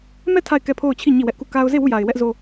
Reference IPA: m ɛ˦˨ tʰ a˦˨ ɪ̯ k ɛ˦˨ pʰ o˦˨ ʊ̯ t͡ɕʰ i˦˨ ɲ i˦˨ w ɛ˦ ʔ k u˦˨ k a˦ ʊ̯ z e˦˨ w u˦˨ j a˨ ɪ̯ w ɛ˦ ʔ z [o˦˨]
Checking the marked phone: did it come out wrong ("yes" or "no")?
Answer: yes